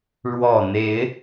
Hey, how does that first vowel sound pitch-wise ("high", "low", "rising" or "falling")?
low